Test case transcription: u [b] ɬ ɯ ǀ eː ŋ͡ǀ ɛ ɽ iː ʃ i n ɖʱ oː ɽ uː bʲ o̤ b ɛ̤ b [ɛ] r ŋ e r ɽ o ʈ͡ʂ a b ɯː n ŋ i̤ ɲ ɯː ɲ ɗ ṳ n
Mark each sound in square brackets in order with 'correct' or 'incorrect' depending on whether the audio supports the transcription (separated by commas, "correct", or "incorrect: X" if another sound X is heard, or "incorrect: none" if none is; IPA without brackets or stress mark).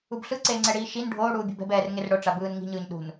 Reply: correct, incorrect: ɛː